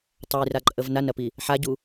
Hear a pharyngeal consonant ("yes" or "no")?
yes